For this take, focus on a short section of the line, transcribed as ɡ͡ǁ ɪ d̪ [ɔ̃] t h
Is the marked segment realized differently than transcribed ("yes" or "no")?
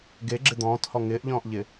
yes